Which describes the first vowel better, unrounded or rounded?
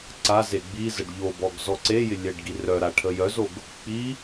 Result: unrounded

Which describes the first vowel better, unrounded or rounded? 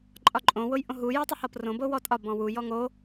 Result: rounded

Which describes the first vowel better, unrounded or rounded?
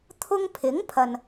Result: rounded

